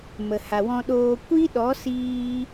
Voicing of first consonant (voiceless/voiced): voiced